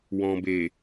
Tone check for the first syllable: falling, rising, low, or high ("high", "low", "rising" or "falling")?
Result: low